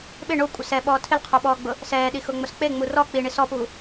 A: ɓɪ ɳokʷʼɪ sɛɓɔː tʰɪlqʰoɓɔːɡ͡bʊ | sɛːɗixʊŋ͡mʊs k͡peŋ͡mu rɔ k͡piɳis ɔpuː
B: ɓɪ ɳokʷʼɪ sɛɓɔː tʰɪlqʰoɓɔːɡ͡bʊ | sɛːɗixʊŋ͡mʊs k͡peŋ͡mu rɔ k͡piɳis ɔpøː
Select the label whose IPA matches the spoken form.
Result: A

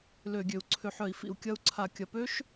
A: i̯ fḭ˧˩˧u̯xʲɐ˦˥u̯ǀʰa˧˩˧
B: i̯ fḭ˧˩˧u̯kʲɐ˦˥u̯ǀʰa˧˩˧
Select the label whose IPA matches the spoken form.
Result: B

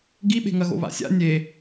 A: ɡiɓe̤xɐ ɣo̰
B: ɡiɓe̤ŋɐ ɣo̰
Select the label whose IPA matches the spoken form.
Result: B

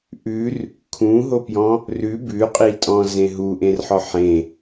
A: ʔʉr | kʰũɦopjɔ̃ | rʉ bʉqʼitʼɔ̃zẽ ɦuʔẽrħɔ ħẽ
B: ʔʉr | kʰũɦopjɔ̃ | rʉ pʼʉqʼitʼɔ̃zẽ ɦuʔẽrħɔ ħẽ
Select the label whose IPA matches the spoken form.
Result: A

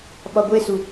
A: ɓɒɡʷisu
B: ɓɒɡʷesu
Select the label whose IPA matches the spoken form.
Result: B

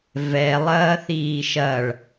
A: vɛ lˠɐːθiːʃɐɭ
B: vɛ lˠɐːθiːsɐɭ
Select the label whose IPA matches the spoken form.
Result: A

